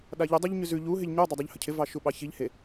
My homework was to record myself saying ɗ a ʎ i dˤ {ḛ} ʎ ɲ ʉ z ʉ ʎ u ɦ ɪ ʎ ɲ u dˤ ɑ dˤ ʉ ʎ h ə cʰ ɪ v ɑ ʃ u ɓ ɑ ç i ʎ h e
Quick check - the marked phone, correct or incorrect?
incorrect